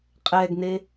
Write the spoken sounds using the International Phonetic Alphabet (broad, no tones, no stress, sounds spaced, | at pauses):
qʼ ɛː ɡ n e